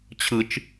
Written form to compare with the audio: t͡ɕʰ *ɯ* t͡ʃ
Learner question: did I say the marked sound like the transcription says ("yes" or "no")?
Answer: yes